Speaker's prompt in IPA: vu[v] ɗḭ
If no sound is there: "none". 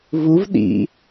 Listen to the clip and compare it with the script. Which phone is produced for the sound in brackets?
v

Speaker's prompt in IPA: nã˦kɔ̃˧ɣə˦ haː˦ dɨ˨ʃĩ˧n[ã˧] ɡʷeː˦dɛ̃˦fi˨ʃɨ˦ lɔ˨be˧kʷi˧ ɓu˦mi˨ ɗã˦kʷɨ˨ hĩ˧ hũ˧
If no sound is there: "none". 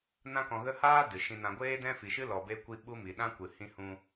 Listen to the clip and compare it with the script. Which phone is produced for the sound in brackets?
ã˧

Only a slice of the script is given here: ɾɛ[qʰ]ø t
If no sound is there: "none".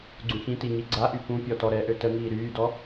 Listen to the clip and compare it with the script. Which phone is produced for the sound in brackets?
ʔ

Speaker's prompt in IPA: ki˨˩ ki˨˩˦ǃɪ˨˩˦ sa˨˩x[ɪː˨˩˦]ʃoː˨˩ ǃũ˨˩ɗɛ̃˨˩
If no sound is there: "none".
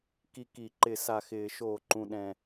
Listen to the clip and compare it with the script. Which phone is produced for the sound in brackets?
ɪː˨˩˦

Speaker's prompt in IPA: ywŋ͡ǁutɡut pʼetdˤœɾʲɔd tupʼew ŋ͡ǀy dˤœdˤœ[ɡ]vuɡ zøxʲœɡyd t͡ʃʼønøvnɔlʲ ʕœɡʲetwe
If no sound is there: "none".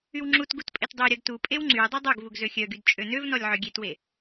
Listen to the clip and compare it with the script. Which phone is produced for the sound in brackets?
ɡ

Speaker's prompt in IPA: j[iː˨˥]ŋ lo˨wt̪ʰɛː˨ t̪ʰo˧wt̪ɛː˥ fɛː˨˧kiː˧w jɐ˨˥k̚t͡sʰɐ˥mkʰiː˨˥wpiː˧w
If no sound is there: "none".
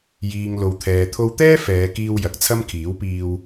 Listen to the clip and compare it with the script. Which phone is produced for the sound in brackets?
iː˨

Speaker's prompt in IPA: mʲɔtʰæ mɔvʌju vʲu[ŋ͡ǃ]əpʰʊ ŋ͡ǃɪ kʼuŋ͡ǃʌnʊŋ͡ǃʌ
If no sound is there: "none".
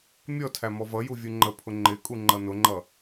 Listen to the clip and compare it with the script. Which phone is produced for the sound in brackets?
ŋ͡ǃ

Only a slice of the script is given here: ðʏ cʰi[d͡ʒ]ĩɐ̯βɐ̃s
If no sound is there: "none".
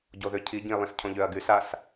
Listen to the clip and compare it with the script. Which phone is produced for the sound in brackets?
ɟ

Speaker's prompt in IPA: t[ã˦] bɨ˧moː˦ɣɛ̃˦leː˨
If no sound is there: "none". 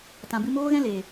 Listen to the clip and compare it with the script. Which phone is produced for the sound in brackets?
ã˨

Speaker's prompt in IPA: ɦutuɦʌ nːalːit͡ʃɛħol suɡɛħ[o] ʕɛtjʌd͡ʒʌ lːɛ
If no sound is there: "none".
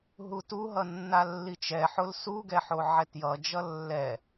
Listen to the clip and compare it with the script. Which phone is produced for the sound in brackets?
o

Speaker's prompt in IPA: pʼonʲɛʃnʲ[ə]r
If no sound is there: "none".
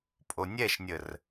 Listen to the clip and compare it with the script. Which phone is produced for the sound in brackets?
ə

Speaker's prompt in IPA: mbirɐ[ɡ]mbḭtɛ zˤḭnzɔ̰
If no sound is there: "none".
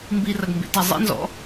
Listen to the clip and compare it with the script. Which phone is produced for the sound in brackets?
ɡ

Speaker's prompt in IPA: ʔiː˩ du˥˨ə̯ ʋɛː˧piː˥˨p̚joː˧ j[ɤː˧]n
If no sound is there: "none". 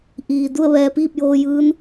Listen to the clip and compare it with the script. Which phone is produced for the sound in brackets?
ɯː˧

